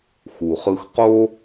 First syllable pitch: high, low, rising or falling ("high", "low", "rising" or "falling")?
low